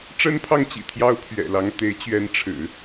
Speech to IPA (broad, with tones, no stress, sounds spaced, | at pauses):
ʈ͡ʂ ə˥ n pʰ ɑ˥˩ ŋ t͡ɕ ḭ˨˩ t̪ʰ j ɑ˥ ʊ̯ pʰ ɥ ɛ̰˨˩ l ɑ˧˥ ŋ t̪ e˧˥ ɪ̯ t͡ɕ ɥ ɛ˧˥ n ʈ͡ʂʰ ɻ̩˨˩˦